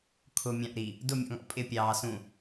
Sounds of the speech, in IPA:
kʰ ʊ mʲ ɑ̃ ʔ ɾ i | d ʊ mʲ ɔ̰ ŋ ɔ̰ pʼ ɪ pʲ ɑː s ũ

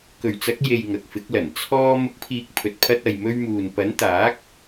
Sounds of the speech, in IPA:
k ɵ˨˩ ɥ t͡s ɐ˨˥ k̚ j e˨ j ŋ ɐ˨ k̚ f ɪ˨˥ k̚ l ɐ˨˩ n t͡sʰ ɔː˧ m ʊ˨˥ k̚ pʰ iː˨ k̚ pʰ ɵ˨ t̚ pʰ ɐ˧ t̚ ɐ˨ j m ɵ˧ ɥ m uː˨ n p ɐ˨˥ n t̪ aː˨˥ k̚

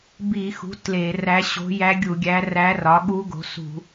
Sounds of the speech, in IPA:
b i˧˩˧ x ṳ˩˥ t l e˧˩˧ r æ˧˥ ɕ o̤˧˥ j æ˧˥ ɡʲ u˧˩˧ ɡʲ æ˧˥ r æ˧˥ r ɒ˩˥ ɠ u˧˥ ɡ o̤˩˥ s ṳ˧˩˧

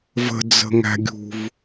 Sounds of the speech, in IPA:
v ə̤ d͡z ə̤ ŋ æ̤ ɡʲ ṳ v

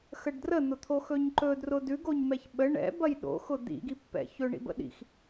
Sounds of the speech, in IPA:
x ə ɖ d r ə n̪ ʊ t̪ʰ o x ɵ ɲ ǃ ɵ d r ʊ d ʉ ɡ o ɲ m ɛ ç ɓ ə ɳ ɛ̰ b ɐ j ɗ o̰ x ʊ d̪ ḭ ɡ i pː ɛ̰ ç ɵ ɳ ḭ b ə̰ ɗ ḭ x

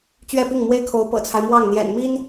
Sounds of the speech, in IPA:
t͡ɕ ɥ ɛ˥˧ p i˥˩ ŋ m w e˥ ɪ̯ kʰ o˧˥ ʊ̯ p ɤ̰˨˩ t͡sʰ a˦ ɪ̯ m w ɑ˥˩ ŋ n̪ j ɛ̰˨˩ n m i˥ n

